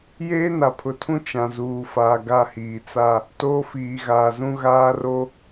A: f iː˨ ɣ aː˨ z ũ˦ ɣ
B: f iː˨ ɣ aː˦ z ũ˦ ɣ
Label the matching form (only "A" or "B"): A